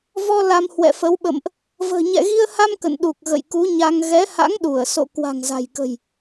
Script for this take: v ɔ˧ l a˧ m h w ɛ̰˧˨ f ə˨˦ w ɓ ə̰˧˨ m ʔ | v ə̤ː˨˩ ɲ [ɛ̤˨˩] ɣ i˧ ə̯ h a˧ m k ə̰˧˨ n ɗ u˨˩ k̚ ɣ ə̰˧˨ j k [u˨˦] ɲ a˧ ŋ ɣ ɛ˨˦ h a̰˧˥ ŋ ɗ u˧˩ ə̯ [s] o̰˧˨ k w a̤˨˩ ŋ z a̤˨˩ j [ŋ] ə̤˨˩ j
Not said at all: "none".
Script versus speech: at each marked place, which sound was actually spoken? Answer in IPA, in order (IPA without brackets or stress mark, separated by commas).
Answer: ɛ̰˧˨, u˨˦, s, k